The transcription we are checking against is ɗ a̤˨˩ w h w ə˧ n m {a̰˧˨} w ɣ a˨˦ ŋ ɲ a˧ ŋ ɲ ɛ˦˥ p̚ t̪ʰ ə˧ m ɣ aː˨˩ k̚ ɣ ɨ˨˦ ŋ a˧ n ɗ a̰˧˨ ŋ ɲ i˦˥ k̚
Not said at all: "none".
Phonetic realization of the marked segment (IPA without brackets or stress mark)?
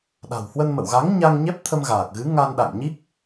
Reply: ə̰˧˨